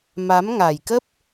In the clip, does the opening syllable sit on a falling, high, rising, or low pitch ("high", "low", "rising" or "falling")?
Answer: rising